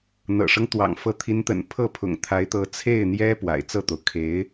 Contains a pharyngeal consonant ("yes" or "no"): no